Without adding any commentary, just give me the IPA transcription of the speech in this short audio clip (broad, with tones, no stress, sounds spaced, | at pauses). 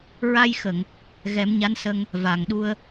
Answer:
ɹ a˧ j x ə˨˩˨ ŋ | ɣ ɛ˨˩˦ m ɲ a˧˥ n s ə˧ ŋ | v a˨˩˨ ŋ ɗ u˧ ə̯